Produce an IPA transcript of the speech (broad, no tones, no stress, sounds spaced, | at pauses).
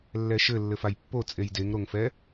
lː ɛ ʃ ɘ lː ɘ f a j pː o t͡sʼ e j d e ŋ ɾ o ŋ f ɛ